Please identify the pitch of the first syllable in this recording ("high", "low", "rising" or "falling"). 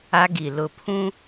high